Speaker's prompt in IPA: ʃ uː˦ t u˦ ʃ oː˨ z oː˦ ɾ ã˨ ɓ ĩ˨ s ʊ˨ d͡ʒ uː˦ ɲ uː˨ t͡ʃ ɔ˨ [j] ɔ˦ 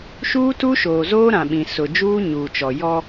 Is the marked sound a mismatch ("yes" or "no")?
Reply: no